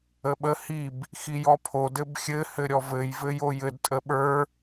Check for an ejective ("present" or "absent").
present